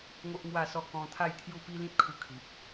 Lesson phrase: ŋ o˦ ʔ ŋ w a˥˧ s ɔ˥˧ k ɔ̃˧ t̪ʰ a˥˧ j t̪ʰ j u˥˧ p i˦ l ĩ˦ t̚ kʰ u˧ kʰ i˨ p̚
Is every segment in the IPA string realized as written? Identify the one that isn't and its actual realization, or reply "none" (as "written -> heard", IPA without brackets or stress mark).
none